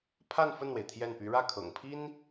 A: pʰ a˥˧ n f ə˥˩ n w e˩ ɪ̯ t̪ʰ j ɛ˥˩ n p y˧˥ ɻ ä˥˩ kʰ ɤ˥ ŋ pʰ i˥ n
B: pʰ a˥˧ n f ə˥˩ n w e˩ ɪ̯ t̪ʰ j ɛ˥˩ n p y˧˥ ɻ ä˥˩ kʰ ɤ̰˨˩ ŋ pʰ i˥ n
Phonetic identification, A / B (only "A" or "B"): B